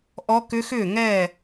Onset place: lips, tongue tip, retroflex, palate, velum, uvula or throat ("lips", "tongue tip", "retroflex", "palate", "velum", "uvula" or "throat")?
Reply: throat